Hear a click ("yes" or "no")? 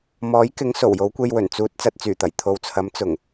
no